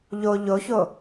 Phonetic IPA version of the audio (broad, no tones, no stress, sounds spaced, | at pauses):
ʎ o ʎ o ç o